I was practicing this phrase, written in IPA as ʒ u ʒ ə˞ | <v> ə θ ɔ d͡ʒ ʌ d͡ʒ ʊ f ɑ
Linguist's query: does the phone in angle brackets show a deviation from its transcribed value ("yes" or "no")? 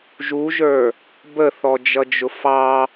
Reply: yes